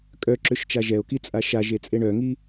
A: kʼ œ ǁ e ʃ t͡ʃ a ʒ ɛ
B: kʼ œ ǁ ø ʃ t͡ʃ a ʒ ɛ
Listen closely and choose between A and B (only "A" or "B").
B